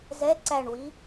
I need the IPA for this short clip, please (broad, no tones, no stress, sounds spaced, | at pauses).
z ɛ ǀ æ ɳ w i